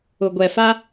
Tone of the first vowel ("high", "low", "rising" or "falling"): low